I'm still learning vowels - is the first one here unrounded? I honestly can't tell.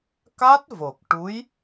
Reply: yes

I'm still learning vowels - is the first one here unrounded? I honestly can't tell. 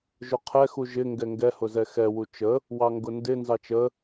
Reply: no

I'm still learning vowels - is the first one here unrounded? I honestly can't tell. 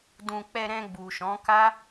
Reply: no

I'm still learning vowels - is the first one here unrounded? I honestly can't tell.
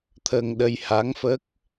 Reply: yes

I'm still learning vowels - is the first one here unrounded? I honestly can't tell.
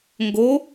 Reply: no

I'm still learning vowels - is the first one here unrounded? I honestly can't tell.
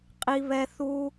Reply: yes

